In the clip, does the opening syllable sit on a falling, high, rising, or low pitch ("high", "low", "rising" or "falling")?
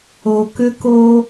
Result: low